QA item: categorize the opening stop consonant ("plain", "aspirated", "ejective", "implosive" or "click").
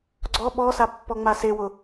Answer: click